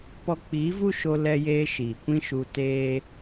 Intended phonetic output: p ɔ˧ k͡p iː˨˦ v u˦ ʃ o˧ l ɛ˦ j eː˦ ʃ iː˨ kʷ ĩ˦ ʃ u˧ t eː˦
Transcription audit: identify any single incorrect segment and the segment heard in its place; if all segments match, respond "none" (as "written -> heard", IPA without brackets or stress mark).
none